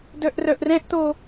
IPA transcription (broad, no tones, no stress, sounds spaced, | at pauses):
d œ ʔ r œ ʔ r ɛ̃ ʔ t̪ o